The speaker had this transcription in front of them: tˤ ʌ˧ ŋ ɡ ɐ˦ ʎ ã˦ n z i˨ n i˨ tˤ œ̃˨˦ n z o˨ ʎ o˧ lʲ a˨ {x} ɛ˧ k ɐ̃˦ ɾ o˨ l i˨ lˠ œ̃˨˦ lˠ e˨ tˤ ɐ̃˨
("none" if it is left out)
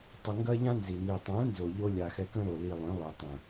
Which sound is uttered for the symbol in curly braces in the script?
x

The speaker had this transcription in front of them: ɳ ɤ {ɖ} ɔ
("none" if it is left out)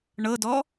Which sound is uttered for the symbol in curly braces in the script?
d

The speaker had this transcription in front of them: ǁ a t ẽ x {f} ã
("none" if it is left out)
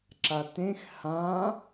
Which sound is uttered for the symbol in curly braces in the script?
h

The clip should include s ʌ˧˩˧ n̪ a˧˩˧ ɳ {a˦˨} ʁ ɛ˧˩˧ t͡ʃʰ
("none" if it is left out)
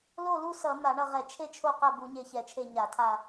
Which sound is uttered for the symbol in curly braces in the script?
ʌ˦˨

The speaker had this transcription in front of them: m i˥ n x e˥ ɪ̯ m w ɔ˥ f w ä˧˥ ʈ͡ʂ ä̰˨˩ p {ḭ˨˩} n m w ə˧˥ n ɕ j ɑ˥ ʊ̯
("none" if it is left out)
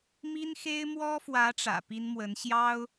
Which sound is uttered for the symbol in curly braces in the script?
i˥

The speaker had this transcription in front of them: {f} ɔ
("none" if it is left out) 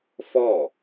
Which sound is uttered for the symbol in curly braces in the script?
f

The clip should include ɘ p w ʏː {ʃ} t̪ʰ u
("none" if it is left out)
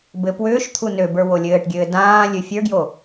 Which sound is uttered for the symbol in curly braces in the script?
ʃ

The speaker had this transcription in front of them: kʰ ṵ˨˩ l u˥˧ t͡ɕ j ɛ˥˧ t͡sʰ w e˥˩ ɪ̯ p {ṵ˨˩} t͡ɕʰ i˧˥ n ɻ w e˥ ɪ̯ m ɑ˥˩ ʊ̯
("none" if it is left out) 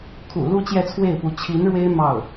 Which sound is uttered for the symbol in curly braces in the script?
u˧˥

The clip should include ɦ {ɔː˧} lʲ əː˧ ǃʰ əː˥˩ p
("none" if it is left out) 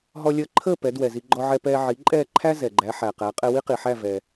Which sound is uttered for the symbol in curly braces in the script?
ɔ˧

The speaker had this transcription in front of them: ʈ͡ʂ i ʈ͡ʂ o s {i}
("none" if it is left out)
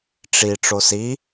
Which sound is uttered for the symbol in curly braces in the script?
i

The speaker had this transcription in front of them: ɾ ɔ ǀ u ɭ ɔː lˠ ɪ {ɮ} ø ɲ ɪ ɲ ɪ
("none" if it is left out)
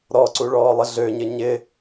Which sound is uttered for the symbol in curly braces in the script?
ɮ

